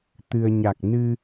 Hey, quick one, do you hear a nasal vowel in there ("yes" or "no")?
no